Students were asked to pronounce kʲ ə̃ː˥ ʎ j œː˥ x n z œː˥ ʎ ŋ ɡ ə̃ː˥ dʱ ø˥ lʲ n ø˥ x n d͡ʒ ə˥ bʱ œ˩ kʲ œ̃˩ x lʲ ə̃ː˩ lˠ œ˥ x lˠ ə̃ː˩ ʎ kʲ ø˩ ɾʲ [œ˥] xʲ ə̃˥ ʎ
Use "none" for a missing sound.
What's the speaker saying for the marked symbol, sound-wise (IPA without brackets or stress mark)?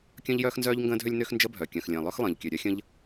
œ˥